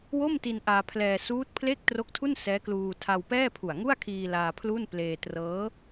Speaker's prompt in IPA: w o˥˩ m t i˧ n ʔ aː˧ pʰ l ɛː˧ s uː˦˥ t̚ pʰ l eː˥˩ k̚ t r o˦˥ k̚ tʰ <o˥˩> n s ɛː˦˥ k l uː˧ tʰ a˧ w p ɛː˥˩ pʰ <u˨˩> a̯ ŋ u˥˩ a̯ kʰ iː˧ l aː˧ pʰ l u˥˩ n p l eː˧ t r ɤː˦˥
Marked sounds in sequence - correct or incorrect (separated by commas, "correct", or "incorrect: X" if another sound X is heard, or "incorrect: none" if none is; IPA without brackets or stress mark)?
incorrect: u˥˩, correct